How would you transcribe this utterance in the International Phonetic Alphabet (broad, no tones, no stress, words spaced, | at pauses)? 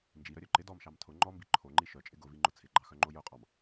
nd͡ʒiɾœɾʲœ ǃɪ dɔmʃɑm tʰʊ ŋ͡ǃɔmbi ǃʰoŋ͡ǃi ʃœt͡ʃʼɪ ɡʊviŋ͡ǃʊ t͡sʰɪɡ͡ǃɑxœŋ͡ǃo jʊqʼɑm